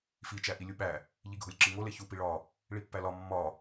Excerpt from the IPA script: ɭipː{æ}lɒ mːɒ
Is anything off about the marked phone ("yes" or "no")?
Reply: no